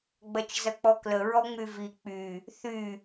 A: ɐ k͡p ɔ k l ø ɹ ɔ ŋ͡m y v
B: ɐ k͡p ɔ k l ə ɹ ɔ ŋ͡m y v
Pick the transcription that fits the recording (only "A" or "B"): B